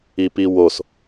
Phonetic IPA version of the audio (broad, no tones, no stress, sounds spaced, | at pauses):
i p i w o s